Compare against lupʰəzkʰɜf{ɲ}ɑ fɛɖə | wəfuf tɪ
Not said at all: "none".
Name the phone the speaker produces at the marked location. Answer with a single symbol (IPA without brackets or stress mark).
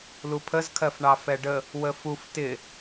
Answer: ɳ